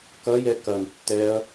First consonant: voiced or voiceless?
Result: voiceless